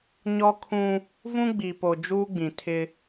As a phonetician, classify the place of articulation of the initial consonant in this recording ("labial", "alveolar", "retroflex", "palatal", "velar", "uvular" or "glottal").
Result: palatal